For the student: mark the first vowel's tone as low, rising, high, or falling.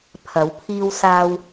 rising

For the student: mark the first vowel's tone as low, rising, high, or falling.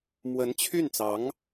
rising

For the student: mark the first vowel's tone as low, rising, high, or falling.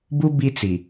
high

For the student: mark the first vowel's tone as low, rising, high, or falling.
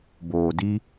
low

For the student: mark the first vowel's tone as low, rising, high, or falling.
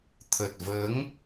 low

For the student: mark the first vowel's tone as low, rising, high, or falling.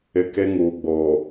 low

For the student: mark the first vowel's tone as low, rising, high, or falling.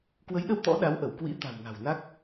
rising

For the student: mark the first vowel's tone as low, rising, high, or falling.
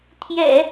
low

